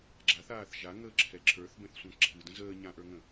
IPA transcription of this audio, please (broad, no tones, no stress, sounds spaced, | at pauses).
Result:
ɡ͡ǁ a θ aː θ ʒ a ŋ əː ǁʰ ɛ ǁʰ ə˞ θ b ɛ̃ θ sʷ ã ǁʰ ɨ d ə̃ z əː ɲ ã ʔ ə˞ ŋ ə̃